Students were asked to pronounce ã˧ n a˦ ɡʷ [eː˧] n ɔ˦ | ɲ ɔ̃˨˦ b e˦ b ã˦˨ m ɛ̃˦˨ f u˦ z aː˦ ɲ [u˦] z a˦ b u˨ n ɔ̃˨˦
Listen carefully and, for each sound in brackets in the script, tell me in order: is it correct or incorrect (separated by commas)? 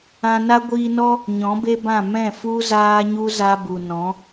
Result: incorrect, correct